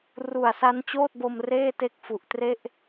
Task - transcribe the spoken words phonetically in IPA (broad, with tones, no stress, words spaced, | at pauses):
ru˨˩a̯sa˦˥nt͡ɕoː˥˩t̚bo˧m reː˥˩ te˥˩k̚ fu˨˩ʔtre˥˩ʔ